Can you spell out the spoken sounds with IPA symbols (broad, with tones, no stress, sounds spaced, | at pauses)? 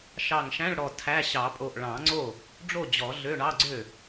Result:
ʃ ɑ˧˩ ŋ ʃ æ̃˧˥˧ ɭ ɽ ɔ˧˩ tʰ æ˧˥˧ ɕ ɑ˨˩˦ pʼ o˧˩ ʔ ɭ ɑ̃˨˩˦ ŋ͡ǀ o˥˩ | ɖ͡ʐ o˥˩ d͡ʑ ɔ˨˩˦ ɮ ø˧˥˧ ɳ ɑ˧˥˧ ɡ͡ǀ ø˥˩